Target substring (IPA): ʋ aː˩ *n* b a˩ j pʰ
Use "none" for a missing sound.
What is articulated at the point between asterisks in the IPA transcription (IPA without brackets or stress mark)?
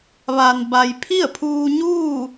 n